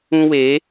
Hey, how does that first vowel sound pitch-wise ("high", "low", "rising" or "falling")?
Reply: high